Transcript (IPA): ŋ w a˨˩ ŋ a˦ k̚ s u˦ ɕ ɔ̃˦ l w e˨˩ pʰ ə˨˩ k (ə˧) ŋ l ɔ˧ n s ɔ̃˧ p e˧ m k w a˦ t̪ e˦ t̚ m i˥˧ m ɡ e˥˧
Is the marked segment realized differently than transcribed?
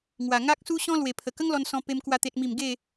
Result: yes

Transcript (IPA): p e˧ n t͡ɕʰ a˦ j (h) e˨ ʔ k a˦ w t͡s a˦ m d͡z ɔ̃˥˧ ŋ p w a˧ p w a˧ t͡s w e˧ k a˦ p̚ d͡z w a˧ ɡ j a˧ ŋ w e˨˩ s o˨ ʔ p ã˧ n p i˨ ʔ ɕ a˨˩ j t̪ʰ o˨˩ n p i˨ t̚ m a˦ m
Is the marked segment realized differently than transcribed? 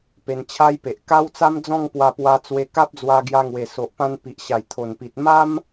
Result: yes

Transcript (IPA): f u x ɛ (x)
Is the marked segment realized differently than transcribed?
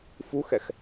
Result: no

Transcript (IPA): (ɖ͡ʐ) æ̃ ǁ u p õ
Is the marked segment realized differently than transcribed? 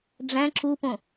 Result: no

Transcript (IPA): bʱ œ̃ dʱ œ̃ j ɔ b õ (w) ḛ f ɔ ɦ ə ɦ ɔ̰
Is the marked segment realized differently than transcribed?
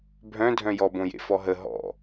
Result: yes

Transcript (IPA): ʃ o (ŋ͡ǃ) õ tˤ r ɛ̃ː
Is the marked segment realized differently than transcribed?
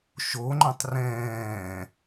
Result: no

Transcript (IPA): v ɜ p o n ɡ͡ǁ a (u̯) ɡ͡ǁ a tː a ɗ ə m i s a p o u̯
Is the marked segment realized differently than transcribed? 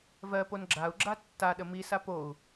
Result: no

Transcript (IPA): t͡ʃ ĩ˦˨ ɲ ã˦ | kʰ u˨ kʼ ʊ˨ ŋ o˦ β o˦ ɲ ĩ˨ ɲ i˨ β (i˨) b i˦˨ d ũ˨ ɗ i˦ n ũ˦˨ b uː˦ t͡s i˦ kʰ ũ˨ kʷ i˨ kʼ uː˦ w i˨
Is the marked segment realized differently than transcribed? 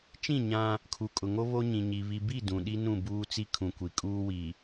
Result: no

